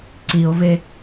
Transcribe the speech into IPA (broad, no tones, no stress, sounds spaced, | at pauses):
ǀ i o̯ v e